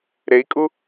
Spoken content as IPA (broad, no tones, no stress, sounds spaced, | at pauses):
ɾ e i̯ kʼ u